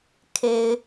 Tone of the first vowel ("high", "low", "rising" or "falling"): low